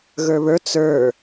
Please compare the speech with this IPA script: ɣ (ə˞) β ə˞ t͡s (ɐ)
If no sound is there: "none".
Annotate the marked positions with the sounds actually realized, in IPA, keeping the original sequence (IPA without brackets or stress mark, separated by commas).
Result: ə˞, ə˞